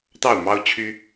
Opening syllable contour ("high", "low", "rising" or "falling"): falling